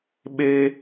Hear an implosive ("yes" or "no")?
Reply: yes